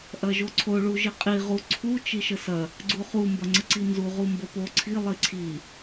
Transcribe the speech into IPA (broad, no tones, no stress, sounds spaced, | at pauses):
ʔ ɐ ʒ o ǀʰ o ɭ u ʒ i qʼ i ʁ u ǀʰ u t͡ʃ i ʃ ə s ɐ | ɡ͡ǀ u χ u m b ɐ ŋ͡ǀ ə ǀ i n z u ʁ u m b ə p o ǀʰ i lˠ i ǀʰ i